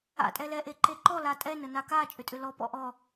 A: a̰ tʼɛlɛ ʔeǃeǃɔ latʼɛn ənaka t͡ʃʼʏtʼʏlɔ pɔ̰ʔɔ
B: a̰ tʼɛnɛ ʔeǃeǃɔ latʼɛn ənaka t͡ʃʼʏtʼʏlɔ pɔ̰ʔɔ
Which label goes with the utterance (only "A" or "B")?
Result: A